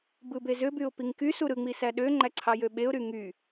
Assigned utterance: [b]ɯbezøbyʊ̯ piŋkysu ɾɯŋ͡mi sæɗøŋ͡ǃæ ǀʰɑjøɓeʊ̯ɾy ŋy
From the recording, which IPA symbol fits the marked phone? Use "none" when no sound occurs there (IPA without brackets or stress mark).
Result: b